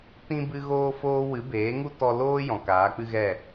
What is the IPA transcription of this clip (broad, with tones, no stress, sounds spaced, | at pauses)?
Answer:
t ĩ˦ b ɨ˦ ɣ oː˦ f oː˦ w ɨ˨˦ b eː˨˦ ŋ u˦ t ɔ˧ l oː˦ j ɔ̃˨ k aː˨˦ k͡p ɨ˦ ɣ ɛ˦˨